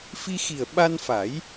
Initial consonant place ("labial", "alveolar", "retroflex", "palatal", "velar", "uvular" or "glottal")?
labial